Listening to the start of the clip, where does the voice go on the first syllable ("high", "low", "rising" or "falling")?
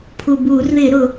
low